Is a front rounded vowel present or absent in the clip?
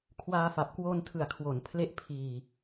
absent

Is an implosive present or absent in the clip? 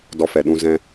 present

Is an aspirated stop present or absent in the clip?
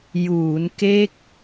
absent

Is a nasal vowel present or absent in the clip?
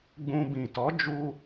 present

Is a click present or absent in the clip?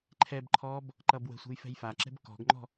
present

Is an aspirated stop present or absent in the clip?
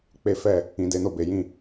absent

